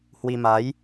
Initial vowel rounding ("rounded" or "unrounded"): unrounded